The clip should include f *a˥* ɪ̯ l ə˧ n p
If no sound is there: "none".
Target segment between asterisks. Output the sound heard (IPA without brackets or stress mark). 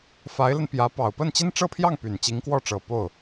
a˧˥